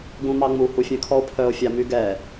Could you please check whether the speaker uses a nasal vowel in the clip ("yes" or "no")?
yes